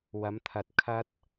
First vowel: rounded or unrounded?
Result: unrounded